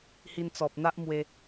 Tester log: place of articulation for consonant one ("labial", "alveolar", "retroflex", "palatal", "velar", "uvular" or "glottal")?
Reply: glottal